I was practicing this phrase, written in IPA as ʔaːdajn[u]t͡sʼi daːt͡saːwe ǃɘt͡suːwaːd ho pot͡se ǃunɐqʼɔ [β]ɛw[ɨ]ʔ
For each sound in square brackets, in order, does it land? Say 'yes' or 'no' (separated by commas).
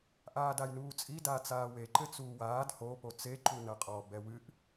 no, no, yes